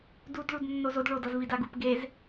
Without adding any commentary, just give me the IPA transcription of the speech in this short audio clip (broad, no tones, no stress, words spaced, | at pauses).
dud ɭudnːozod ɭod ʌzvidaɡup ɡez